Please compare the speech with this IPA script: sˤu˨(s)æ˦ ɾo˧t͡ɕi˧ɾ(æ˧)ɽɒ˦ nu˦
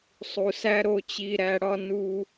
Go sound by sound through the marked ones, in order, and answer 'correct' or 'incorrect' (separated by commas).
correct, correct